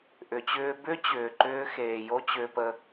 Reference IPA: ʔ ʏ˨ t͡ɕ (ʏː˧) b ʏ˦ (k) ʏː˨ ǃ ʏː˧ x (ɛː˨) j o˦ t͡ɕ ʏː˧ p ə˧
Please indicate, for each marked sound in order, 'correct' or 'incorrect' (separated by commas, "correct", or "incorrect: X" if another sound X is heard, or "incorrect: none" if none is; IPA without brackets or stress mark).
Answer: correct, incorrect: t͡ɕ, incorrect: eː˨